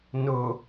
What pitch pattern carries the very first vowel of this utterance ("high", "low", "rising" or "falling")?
low